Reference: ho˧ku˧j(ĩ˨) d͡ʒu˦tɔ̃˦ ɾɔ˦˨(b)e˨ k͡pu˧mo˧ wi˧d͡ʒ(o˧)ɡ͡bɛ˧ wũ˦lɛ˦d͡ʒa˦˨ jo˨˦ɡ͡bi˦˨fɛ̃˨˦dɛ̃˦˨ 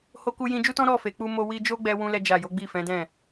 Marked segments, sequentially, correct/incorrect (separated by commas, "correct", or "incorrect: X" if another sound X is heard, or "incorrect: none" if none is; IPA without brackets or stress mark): incorrect: ĩ˧, incorrect: f, incorrect: o˦